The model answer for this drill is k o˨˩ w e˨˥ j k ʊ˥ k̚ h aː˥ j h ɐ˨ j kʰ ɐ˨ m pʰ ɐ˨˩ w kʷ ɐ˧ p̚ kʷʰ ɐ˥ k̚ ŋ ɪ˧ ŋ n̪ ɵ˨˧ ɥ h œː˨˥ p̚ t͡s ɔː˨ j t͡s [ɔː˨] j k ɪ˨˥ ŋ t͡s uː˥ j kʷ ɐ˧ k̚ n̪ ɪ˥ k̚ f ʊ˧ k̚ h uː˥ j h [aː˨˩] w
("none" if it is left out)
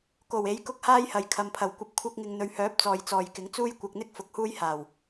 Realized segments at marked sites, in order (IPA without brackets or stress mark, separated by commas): ɔː˨, aː˨˩